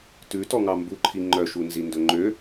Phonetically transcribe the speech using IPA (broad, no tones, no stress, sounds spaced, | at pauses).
t ʉ t ɔ ŋ ɑ m b u ǃʰ i ŋ͡ǃ œ ʃ u n z i n d ɵ ŋ͡ǃ ø